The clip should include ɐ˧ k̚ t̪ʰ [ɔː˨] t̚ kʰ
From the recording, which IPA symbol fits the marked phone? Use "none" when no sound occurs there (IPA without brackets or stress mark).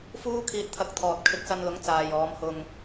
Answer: ɔː˨